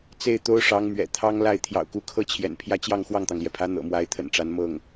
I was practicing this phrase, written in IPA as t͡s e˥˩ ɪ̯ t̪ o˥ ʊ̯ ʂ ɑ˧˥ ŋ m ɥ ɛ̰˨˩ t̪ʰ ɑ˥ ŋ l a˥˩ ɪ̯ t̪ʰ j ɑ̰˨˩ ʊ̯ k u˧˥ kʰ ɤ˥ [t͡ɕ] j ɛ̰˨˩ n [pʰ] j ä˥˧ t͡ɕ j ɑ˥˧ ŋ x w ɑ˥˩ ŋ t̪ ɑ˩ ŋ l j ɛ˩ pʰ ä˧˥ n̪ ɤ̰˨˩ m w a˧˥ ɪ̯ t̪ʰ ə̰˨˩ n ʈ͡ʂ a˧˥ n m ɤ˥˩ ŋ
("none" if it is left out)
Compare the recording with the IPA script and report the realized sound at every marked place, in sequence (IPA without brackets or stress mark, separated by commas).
t͡ɕʰ, pʰ